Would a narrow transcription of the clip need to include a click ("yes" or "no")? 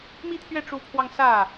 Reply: no